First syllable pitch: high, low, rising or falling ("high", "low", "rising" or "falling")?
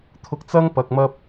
low